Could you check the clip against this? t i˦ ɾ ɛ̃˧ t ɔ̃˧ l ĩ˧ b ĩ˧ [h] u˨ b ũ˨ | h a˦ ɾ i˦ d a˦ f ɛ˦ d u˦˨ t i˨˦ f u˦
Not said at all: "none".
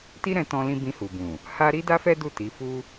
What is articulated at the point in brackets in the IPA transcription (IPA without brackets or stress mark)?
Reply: h